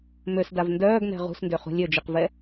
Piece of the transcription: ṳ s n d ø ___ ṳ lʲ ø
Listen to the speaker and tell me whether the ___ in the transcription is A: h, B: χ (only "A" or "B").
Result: B